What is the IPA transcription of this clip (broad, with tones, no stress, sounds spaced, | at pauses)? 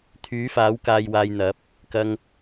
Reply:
t̪ʰ yː˨˥ f aː˨˥ w k aː˧ j w aː˧ j n̪ ɐ˨˥ p̚ | k ɐ˨ ŋ